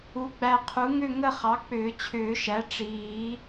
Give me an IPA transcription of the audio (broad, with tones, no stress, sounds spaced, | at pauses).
u˩˥ ɡ͡b æ˨ qʰ u˩˥ ŋ ʏ˥˨ ŋ ə˥˨ χ ɑ˩˥ k͡p ʏː˨˩˦ t͡ɕʰ ʏː˨˩˦ ʃ æ˩˥ ʈ͡ʂ iː˨˩˦